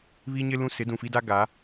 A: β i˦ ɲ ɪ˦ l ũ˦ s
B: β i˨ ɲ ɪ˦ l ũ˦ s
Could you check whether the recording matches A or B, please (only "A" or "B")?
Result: A